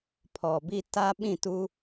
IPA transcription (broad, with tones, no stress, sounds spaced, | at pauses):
pʰ ɔ˨ b i˦ t a˦ ɓ ĩ˦˨ t u˦